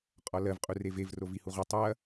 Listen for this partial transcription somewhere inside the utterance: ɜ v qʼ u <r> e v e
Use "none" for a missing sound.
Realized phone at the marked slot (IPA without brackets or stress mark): r